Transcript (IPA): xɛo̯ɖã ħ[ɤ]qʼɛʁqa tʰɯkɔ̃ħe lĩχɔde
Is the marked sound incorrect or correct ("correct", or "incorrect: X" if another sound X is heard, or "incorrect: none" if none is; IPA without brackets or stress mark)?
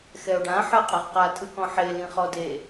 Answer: correct